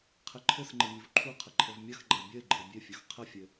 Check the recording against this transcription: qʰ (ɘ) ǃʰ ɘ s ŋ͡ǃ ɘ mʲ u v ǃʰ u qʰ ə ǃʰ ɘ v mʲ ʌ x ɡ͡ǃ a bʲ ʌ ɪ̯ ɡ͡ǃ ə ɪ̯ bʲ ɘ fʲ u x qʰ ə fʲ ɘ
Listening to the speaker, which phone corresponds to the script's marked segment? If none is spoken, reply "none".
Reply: ɘ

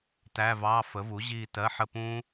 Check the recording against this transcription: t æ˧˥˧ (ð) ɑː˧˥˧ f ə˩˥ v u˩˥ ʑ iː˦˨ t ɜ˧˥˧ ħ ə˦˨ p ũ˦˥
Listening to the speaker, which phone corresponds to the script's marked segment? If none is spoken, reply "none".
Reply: v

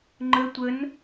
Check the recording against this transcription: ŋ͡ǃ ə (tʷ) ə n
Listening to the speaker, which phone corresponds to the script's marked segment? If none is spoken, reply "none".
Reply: tʷ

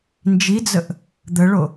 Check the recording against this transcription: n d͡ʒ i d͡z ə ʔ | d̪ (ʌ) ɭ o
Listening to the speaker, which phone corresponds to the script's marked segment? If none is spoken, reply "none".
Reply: ə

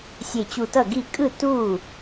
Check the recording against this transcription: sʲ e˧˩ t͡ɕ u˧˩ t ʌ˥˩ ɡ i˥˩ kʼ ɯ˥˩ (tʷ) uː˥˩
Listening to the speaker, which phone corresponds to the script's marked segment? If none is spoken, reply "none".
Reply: t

